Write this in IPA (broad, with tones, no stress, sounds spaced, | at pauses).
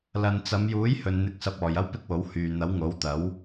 l ɐ˨ n t͡s ɐ˨˧ m j uː˨˥ j h ɵ˨ n n̪ ɪ˨˥ k̚ s ɐ˨ p̚ ɔː˨ j ɐ˥ w p ɪ˥ k̚ w o˨˥ w h yː˨ n̪ ɐ˨˥ w ŋ o˨˥ w t̪ ɐ˨˥ w